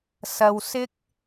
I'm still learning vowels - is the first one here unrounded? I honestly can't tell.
yes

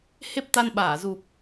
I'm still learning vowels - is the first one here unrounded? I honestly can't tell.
yes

